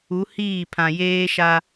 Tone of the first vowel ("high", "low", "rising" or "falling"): rising